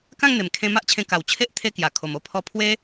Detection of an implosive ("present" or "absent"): absent